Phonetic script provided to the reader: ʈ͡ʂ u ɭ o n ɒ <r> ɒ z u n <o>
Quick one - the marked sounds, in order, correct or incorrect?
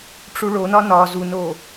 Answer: incorrect: n, correct

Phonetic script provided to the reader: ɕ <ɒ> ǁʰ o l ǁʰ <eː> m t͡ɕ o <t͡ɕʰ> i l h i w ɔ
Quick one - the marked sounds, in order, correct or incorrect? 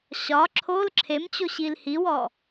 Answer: correct, incorrect: e, incorrect: ɕ

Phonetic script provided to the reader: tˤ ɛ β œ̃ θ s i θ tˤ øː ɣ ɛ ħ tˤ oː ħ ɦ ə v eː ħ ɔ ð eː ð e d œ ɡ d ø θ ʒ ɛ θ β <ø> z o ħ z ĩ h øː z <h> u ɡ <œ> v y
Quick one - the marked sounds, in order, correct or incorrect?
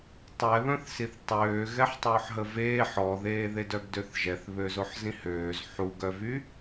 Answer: correct, incorrect: ħ, correct

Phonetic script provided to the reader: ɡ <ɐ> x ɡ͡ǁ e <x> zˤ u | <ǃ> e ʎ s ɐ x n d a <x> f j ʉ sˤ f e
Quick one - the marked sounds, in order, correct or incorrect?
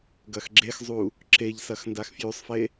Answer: correct, correct, incorrect: ǁ, correct

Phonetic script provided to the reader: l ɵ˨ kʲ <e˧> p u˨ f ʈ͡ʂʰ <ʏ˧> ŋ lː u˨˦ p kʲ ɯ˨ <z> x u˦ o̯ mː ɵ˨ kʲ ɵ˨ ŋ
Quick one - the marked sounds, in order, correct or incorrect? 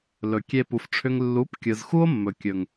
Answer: correct, correct, correct

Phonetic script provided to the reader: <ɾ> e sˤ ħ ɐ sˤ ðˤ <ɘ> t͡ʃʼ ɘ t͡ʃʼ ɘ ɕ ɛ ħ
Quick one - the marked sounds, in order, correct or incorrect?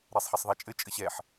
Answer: correct, incorrect: ɛ

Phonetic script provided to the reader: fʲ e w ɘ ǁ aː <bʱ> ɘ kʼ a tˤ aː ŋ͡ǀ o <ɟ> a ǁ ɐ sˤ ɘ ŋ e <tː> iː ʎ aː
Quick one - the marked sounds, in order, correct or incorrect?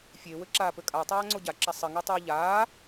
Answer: incorrect: p, correct, incorrect: tˤ

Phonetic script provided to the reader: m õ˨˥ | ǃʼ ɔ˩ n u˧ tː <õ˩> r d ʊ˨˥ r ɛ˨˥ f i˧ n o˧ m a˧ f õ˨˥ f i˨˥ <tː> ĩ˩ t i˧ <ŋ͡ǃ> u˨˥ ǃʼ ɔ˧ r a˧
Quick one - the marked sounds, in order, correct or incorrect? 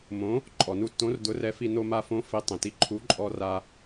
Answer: incorrect: õ˨˥, incorrect: tˤ, incorrect: ǃʰ

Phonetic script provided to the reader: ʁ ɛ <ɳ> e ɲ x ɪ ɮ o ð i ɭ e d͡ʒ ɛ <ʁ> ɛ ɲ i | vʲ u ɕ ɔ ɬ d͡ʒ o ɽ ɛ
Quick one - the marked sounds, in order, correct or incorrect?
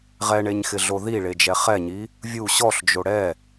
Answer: correct, incorrect: χ

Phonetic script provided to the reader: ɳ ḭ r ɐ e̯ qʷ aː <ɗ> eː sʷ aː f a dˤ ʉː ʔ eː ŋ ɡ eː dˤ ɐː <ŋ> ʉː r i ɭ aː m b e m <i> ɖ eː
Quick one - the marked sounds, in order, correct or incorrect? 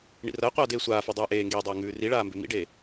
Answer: incorrect: d, correct, incorrect: ḭ

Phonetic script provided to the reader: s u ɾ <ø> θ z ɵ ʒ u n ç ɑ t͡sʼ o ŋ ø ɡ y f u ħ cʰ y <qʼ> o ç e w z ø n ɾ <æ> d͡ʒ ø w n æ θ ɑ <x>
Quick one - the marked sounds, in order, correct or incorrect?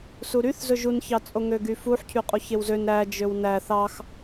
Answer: incorrect: y, correct, correct, correct

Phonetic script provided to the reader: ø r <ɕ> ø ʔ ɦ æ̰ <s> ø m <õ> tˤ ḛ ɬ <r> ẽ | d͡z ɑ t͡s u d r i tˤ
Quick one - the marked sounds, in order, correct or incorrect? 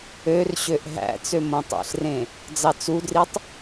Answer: correct, incorrect: t͡s, correct, correct

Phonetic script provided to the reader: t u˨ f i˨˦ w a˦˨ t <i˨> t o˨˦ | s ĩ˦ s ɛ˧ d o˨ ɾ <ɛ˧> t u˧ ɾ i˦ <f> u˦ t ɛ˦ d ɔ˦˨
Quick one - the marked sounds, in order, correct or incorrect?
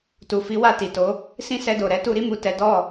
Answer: correct, incorrect: ɛ˨˦, incorrect: m

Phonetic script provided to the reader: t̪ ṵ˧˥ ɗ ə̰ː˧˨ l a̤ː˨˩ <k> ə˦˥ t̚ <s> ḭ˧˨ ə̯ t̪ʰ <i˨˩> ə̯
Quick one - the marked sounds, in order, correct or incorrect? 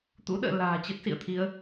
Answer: incorrect: t͡ɕ, correct, incorrect: i˨˦

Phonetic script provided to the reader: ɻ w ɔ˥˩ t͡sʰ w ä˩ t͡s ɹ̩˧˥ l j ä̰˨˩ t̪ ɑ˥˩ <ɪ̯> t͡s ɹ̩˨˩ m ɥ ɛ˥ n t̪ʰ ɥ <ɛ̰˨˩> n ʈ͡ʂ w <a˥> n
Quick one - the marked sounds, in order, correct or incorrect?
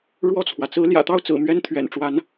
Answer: incorrect: ʊ̯, correct, incorrect: a˧˥

